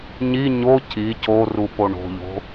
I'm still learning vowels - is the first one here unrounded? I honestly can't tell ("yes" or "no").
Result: yes